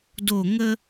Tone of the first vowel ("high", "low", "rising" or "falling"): falling